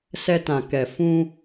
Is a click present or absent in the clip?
absent